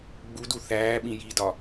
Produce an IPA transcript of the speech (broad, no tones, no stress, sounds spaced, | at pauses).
ɡ͡b u d u θ æː ɓ ĩ j i d ɒ